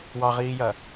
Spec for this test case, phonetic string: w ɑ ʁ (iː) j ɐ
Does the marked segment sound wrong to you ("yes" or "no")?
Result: no